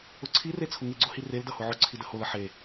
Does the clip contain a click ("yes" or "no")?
yes